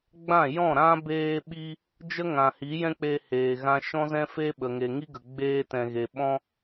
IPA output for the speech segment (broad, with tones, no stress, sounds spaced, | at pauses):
ɡ͡b ã˦˨ j ɔ̃˦˨ ɾ ã˦ b eː˧ ɓ i˧ | d͡ʒ ə˦ ŋ ã˨ h i˨˦ j ɛ̃˦ k͡p e˧ h eː˨ ɣ ã˧ ʃ ɔ̃˦ z ɛ̃˦ f e˦ ɓ ə˨ ŋ e˨ ŋ i˦ ɡ ə˨ ɡ͡b eː˧ t ɛ̃˨ ɣ e˨ ɓ ɔ̃˧